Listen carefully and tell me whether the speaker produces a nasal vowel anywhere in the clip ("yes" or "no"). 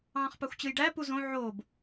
yes